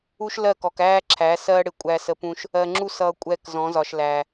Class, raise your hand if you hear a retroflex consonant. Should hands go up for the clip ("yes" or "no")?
yes